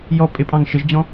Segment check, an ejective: present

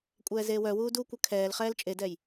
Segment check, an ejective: present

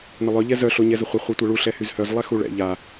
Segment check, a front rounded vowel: present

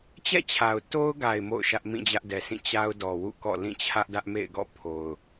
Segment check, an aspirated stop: present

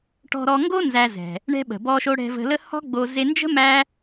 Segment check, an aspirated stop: absent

